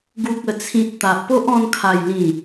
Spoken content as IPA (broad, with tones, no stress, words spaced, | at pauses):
ɡu˨k̚ə˨˩t͡sʰĩ˨t̚ t̪a˨ʔpo˦ʔɔ̃˧n kʰa˨˩jlĩ˨˩